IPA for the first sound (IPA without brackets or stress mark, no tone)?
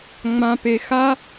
ŋ͡m